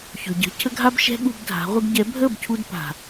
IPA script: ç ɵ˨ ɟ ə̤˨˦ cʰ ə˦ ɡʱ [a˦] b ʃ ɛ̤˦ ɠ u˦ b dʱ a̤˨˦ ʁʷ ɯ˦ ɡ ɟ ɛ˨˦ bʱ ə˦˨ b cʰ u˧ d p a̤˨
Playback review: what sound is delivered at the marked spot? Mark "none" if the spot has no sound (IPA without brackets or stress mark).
a˦